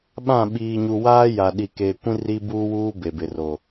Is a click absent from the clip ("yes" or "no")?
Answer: yes